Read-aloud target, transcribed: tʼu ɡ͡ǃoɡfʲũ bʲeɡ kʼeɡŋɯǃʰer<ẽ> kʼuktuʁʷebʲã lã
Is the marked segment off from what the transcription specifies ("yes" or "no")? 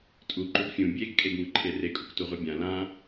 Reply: yes